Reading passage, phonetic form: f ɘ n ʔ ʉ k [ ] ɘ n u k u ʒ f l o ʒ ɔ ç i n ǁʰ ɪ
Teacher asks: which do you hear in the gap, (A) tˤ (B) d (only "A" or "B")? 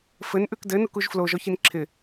B